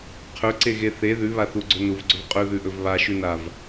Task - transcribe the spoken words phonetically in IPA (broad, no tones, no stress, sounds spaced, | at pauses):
qʰ ɵ ǀ e ɣ e θ e ð ʉ β a θ u ɡ͡ǀ ɵ n u v ɡ͡ǀ ɵ v qʼ ɵ ð ʉ ʔ ɵ v β a ʃ ʉ n a v